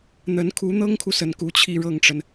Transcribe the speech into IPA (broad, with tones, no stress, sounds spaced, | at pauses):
n̪ ə˧˥ n kʰ u˧˥ n̪ ɤ˥ ŋ kʰ u˨ s ə˥˩ n k u˥ t͡ɕʰ i˥˧ ɻ ɤ˥˩ ŋ ʈ͡ʂ ə˩ n